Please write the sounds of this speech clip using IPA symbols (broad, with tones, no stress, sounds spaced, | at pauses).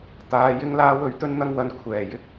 t̪ aː˧ j ɪ˥ ŋ l aː˥ w ɵ˨ ɥ t̪ ɵ˥ n n̪ ɐ˥ ŋ w ɐ˧ n kʷʰ ɛː˨˩ j ɪ˥ k̚